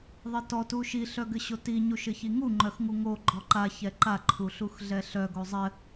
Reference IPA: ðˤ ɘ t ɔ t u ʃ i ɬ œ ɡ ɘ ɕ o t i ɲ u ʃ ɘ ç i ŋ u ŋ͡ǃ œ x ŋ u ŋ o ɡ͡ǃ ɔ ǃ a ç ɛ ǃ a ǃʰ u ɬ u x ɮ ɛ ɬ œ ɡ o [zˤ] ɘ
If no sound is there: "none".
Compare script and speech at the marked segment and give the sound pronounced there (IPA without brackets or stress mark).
zˤ